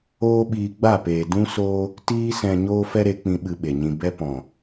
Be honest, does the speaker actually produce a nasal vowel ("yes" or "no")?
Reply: yes